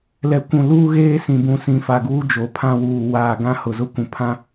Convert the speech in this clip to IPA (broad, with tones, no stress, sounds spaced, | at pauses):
l ɛ˨ kʷ ũ˨ l uː˦ ɣ eː˦ s ĩ˨ b ũ˨ s ĩ˨˦ f a˨ ɡ uː˦ d͡ʒ o˨ pʰ ã˦ w uː˨ w aː˨ ɡ ã˦ h ʊ˨ z ʊ˦ kʷ ũ˨ pʰ ã˦